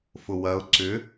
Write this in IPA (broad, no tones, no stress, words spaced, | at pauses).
fʊwɐʊ̯ ǀʏ